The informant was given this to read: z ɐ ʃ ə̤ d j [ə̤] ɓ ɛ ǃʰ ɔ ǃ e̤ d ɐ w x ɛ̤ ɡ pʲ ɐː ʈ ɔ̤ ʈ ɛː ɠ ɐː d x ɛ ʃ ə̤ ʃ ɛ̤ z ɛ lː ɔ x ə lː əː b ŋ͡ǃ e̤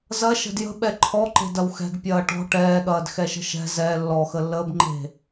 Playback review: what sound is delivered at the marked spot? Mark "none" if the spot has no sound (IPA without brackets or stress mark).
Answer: ə̤